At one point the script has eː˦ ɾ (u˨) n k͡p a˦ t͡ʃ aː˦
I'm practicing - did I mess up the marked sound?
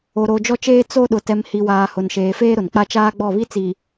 yes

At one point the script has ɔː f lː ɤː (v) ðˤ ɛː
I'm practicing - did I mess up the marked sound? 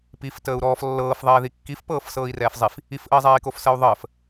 yes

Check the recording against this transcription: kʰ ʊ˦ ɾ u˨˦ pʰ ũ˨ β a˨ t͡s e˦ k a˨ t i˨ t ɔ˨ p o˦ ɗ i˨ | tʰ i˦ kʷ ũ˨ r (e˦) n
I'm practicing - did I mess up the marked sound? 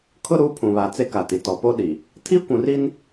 yes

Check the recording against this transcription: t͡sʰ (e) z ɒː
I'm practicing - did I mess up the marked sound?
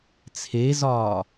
no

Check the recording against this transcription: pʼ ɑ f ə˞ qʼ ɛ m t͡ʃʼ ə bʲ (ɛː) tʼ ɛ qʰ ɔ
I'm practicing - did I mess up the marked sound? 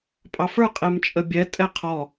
yes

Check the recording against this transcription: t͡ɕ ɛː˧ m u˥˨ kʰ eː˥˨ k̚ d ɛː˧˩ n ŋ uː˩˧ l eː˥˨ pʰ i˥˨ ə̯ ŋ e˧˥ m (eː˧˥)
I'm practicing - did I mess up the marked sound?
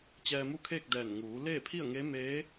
no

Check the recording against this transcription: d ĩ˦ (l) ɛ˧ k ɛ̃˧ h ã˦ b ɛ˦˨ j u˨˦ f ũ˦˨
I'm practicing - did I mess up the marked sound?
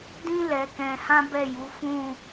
no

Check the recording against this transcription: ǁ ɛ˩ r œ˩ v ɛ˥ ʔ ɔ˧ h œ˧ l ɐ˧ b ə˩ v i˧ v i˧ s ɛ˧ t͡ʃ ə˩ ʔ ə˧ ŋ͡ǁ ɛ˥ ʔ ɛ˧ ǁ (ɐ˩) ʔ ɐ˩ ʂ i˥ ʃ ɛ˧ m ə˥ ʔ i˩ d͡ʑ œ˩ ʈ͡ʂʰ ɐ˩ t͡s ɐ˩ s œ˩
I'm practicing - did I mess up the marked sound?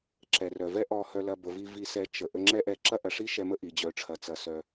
yes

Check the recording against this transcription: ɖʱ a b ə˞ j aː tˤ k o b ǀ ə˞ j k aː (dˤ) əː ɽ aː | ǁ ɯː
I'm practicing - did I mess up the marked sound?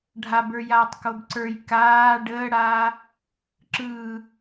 yes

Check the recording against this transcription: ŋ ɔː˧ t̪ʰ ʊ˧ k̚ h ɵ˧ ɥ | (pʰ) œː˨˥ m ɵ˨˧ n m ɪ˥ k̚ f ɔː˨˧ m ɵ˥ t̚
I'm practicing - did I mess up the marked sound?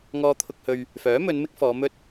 yes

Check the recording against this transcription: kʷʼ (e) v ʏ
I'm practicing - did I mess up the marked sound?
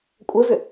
yes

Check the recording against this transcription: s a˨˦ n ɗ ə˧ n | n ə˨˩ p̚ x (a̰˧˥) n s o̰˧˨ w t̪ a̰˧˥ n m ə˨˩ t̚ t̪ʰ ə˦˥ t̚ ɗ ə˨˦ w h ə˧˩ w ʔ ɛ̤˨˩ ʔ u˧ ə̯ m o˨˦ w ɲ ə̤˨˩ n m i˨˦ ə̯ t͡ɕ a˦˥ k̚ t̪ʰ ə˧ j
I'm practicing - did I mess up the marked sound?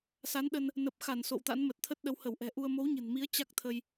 yes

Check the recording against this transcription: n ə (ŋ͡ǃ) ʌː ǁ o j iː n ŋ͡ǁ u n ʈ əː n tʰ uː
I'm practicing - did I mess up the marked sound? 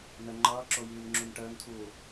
no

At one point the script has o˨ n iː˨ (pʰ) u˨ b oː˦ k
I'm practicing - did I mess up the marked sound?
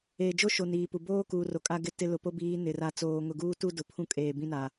yes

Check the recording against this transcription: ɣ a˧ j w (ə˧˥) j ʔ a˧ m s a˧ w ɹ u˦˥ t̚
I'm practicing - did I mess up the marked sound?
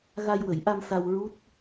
yes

